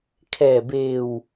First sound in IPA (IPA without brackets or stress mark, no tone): kʰ